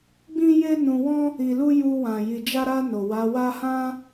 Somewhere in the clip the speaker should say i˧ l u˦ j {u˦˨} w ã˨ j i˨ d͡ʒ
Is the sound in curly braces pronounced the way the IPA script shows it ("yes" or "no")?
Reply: no